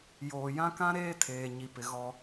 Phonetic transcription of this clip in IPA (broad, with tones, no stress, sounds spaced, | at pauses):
j oː˨ j ã˦ k ã˦ ɾ eː˦ tʰ eː˨ ɲ i˨ p ɪ˨ ɣ ɔ˦